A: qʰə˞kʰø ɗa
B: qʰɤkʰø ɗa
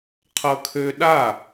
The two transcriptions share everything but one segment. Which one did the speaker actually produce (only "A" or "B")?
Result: B